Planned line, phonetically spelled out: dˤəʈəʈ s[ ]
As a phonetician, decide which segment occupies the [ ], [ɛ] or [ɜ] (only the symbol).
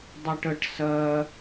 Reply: ɜ